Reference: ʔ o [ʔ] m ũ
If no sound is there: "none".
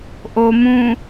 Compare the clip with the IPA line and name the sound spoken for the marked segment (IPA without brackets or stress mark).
none